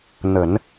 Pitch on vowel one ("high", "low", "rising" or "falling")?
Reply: low